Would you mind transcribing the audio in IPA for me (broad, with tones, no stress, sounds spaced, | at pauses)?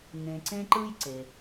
ŋ ẽ˨ ǀ ẽ˥ ǃ ɯ˥ j ǀ e˩